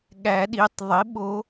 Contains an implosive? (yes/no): yes